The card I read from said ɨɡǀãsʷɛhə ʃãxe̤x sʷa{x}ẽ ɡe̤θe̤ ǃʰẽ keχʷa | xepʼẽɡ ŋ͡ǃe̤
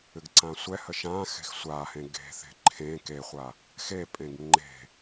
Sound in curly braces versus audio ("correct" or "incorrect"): incorrect